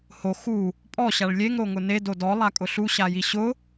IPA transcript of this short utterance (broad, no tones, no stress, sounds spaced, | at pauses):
h o x u | pʼ ɔ ɕ a ɭ lʲ e ŋ ɾ o ŋ ʊ n e d o d ɔ lˠ a kʼ ʊ ɬ u ɕ a j i ɕ ʊ